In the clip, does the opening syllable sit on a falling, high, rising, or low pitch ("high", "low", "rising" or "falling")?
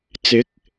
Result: rising